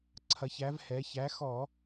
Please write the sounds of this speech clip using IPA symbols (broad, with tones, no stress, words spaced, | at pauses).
ǀʰɐ˩˧çæ˩˧v hɛ˩˧çæ˨˥ xɔ˧˩˧